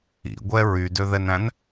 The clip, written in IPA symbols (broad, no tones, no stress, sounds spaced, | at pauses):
ḭ ɡʷ ɛ ɹ y d ø ð ɛ n æ̃ n